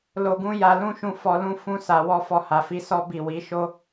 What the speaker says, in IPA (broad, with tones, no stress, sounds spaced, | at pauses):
l o˧ ɡ ũ˦ j a˧ l ũ˦ ʃ ũ˦˨ f ɔ˧ l ũ˧ f ũ˧ s a˨ w ɔ˧ f ɔ˧ h a˨ f i˧ s ɔ˦ b i˦˨ w i˨˦ ʃ o˦